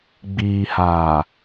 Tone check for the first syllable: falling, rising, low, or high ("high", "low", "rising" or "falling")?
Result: low